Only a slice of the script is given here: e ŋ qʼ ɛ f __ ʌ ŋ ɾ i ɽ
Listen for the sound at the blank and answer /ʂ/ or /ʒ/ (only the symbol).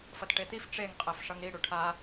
ʂ